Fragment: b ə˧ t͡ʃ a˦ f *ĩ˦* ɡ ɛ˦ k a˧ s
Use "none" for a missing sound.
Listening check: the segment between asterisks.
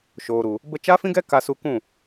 ĩ˦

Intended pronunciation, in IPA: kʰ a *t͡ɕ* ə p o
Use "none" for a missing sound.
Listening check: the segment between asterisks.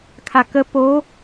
k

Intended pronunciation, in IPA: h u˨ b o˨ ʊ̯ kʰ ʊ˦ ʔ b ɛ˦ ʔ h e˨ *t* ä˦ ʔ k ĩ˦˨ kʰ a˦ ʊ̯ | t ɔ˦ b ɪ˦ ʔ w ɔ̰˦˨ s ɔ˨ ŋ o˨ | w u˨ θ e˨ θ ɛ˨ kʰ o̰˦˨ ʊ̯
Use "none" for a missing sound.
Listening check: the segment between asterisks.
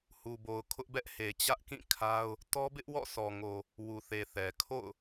t͡ɕ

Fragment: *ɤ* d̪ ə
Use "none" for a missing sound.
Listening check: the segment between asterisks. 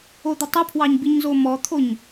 o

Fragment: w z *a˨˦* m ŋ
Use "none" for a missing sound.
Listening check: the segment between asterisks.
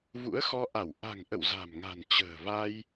a̤˨˩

